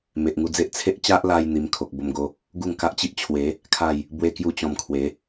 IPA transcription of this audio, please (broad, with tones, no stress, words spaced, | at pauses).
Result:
me˨ʔŋu˧d͡ze˦ʔ t͡sʰe˦ʔ t͡ɕa˦ʔla˧j n̪i˧m kʰo˨k̚bo˧mɡo˧ | ɡu˥˧ŋka˦ʔt͡ɕi˦ʔt͡ɕʰwe˨˦ | kʰa˥˧j | bwe˦kju˦t͡ɕɔ̃˧mkʰwe˨˦